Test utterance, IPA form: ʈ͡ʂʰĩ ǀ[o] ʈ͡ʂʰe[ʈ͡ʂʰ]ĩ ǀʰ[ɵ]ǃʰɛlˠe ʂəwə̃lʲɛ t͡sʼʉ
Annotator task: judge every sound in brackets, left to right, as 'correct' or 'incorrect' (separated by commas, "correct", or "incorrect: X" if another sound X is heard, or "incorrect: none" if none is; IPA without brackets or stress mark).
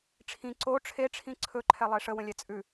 correct, correct, correct